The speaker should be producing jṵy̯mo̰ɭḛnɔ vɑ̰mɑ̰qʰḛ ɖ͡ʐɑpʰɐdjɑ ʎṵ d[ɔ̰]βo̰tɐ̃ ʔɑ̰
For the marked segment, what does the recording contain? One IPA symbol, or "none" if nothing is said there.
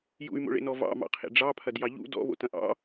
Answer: ɔ̰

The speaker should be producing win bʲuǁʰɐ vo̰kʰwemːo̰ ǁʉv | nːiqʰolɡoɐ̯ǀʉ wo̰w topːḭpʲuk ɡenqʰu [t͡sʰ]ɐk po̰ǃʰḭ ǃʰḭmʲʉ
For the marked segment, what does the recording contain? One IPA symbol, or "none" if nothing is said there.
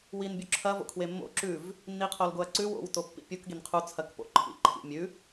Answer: t͡sʰ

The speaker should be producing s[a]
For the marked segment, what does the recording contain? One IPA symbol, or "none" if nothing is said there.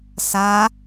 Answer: a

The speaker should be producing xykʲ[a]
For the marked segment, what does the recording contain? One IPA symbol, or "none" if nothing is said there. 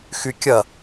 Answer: ɐ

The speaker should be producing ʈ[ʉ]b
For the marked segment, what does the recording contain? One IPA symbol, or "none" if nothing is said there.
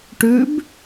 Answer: ʉ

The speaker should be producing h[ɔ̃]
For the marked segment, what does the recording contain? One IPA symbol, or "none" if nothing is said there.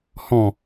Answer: ɔ̃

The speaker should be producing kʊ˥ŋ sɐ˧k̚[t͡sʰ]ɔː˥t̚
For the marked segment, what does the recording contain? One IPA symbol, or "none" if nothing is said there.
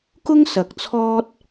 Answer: t͡sʰ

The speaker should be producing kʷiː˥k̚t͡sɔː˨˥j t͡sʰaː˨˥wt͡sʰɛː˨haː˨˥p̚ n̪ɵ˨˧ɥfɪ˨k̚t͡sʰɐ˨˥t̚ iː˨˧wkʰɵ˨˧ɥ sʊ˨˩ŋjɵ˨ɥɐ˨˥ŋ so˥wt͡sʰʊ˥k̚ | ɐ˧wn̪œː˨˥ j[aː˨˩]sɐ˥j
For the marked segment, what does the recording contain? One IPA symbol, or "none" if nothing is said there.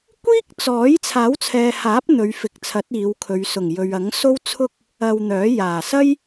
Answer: aː˨˩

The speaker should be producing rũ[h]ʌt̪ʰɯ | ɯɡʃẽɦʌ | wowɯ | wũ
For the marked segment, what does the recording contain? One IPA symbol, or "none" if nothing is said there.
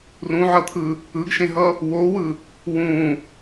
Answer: ʕ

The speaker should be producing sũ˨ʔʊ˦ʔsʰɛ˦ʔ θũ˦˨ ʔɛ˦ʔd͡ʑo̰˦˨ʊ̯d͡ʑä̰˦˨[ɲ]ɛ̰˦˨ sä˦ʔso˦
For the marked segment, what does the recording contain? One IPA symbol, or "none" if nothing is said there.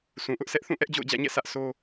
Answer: ɲ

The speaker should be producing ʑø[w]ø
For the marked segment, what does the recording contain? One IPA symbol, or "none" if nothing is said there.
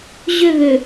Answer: β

